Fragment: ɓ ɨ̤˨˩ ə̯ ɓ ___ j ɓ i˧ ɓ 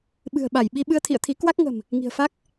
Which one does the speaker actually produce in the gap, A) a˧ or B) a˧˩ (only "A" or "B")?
B